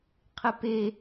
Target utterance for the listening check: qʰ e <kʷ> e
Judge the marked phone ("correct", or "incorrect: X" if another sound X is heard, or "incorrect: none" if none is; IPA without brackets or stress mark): incorrect: p